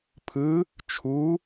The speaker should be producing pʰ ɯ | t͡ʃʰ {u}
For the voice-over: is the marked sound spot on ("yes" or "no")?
yes